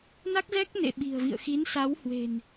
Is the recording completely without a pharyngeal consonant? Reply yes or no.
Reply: yes